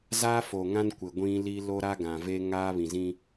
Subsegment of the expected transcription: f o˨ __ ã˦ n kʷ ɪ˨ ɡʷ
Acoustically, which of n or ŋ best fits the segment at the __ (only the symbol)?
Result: ŋ